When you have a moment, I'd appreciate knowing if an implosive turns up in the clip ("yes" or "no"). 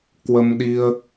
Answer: yes